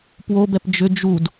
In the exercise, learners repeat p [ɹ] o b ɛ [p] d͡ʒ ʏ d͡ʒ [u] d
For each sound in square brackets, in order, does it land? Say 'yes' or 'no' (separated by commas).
no, yes, yes